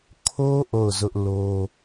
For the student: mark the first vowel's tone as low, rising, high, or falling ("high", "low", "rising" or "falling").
high